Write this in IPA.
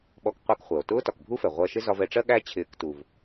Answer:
ɓ ɔ˧ k qʷ æ˧ k χʷ ɜ˩ o̯ t ʊː˥ t ɒ˩ k bʱ u˥ f ɛ˩ ʁʷ ɜ˧ ʃ ɪ˥ z ɒ˧ v ɛ˧ ʈ͡ʂ ɜ˥ ɠ æ˥ t͡ɕʰ ɪː˧ k t u˩ v

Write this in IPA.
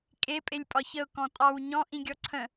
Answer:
kʼ e pʼ e lʲ pʼ ɒ ç ə ʊ̯ k ɔ̃ tʼ ɑ w ɲ ɔ̃ ʔ ĩ ɡʲ ɔ ǀʰ ə̃

